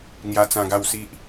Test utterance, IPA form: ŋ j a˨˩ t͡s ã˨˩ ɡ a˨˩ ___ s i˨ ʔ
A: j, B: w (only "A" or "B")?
B